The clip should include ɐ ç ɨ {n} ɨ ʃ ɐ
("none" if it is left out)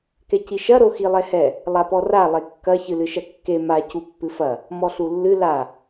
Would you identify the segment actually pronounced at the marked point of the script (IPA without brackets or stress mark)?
l